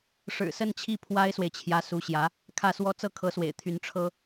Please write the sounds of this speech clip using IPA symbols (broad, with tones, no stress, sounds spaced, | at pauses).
ʂ ɻ̩˨˩ s ə˥˧ n t͡ɕʰ i˥˩ pʰ w a˥ ɪ̯ s w e˨ ɪ̯ t͡ɕʰ j ä˧˥ s u˧˥ ɕ j ä˧˥ | kʰ ä˥˩ s w ɔ˥ t͡s ɤ˥˩ kʰ ɤ˧˥ s w ḛ˨˩ ɪ̯ t̪ʰ y˧˥ n ʈ͡ʂʰ ɤ˥